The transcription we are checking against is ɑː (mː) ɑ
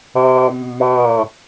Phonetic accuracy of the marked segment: correct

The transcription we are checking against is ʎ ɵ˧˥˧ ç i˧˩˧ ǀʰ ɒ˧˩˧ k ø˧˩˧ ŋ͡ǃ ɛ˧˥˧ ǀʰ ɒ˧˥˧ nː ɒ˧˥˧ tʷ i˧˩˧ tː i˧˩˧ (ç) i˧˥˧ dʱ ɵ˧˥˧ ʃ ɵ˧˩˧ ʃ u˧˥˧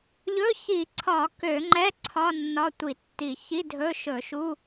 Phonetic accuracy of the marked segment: correct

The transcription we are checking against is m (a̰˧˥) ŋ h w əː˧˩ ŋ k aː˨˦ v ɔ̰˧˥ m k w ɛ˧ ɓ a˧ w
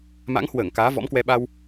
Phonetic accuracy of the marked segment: correct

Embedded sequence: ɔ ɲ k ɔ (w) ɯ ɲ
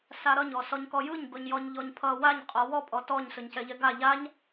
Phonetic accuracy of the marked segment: incorrect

